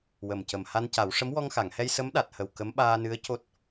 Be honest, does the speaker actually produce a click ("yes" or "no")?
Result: no